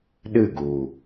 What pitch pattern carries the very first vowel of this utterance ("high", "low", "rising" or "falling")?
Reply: falling